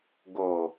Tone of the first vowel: low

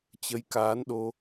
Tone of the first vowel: rising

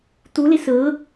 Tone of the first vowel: rising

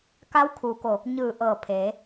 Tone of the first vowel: rising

